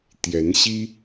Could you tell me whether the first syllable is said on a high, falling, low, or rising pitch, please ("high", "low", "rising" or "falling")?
rising